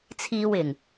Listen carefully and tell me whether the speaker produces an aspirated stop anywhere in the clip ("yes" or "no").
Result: yes